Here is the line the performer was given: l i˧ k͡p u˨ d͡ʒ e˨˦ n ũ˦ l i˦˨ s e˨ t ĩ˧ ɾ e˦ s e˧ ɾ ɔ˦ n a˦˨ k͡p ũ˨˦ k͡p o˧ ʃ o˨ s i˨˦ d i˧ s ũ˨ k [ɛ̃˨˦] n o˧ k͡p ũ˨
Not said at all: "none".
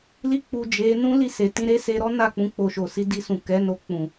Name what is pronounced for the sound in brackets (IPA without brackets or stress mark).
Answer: ɛ˨˦